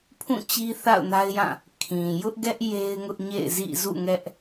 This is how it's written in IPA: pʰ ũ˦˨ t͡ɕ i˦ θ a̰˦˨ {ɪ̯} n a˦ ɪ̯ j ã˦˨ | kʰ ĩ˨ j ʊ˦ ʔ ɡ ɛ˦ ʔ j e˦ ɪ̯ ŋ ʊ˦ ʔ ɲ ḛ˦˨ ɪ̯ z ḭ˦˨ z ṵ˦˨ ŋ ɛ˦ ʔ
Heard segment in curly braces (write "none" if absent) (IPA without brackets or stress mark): ʊ̯